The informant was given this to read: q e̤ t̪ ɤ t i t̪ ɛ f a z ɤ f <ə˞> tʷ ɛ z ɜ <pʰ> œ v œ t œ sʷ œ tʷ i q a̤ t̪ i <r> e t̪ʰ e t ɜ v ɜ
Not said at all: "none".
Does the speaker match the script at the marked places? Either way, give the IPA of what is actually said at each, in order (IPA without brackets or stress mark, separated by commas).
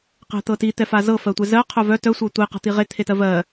ɜ, qʰ, ʁ